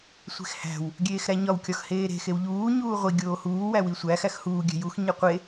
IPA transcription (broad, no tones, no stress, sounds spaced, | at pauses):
sʷ e̤ x h æ̤ w | ɡʲ eː x ɾ æ ɲ ɒ w kʲ ɒ x h eː ɾ e̤ x e w ʎ uː ɲ uː ʁʷ i ɡʲ oː h uː w æ w i sʷ æ x æ x h uː ɡʲ æ̤ j u x ɲ e qʷ e